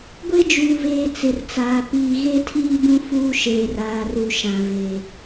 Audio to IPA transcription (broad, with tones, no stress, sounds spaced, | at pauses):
ɡʷ e˦ d͡ʒ uː˨ v eː˨ t͡s ɪ˨ r t͡s aː˨ p iː˨ ɣ e˦ tʰ iː˦ b ũ˦ f uː˦ ʃ eː˨ r aː˨ r u˨ ʃ ã˨ v e˨